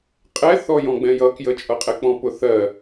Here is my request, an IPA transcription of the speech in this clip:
qʼɛθɔ jɔ̃ɡ͡bɛ̃jʌ kjət͡ʃʼʌqʼɛk͡pɔ̃ pʊθɜ

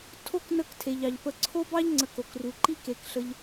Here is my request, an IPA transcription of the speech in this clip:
tʰo˦k nə˦ktʰe˩ʎɑ˩ʎ pə˨ǀʰo˥bɑ˥ʎ ŋ͡ǀə˨ko˩k ru˩ǃi˦ ke˩kɬə˨ʎ

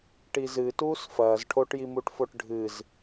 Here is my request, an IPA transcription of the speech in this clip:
ʈizɨ tuːsfɐːz ʈʰoʈjimuʈfoʈ ɖʱɨz

